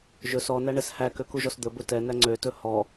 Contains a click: yes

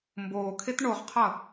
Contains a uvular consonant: yes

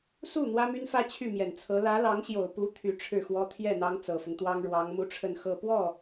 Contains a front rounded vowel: yes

